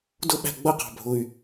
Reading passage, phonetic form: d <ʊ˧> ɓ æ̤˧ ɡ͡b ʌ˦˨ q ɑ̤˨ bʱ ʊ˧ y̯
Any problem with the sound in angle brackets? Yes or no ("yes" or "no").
yes